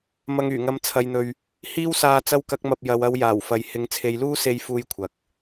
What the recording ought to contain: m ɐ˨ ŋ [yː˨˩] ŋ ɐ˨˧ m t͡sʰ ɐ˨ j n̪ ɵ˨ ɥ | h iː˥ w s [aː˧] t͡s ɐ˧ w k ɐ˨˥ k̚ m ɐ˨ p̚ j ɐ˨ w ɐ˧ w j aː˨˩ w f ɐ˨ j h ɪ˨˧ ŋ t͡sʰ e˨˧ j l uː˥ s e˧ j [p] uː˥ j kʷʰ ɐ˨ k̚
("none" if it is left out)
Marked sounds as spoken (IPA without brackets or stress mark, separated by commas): yː˨˩, aː˧, f